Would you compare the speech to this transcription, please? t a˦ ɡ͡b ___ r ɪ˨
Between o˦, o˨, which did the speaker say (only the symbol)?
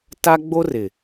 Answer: o˦